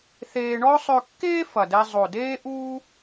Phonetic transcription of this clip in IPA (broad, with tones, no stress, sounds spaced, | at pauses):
θ eː˧ ɳ ɔ˥ sˤ ø˧ kː eː˥ f ɐ˨˩ d ɛ˧ zˤ o˨˩ d eː˥ ʔ uː˥